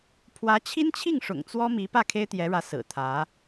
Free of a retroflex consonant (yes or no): no